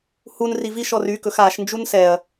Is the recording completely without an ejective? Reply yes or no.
yes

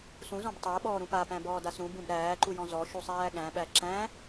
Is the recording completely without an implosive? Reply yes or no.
no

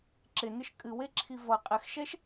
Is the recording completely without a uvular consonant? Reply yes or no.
no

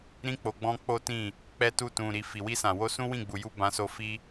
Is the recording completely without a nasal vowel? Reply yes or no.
no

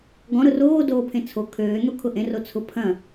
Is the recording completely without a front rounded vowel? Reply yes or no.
no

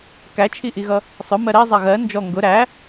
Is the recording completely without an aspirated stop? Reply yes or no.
no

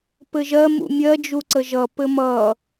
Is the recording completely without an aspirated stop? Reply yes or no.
yes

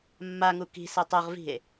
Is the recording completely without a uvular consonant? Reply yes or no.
no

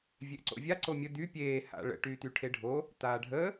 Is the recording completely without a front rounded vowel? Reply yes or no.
no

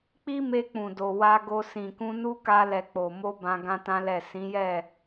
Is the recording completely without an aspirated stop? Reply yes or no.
yes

